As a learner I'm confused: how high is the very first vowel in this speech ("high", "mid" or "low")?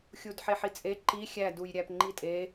high